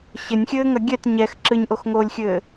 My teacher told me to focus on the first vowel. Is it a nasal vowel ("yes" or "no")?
no